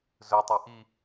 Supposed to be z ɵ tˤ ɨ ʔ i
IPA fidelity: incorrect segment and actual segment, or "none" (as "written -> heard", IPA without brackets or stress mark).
ɨ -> i